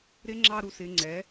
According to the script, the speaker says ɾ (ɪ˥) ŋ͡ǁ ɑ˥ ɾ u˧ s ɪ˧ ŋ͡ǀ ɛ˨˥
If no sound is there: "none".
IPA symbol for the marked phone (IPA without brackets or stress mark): ɪ˥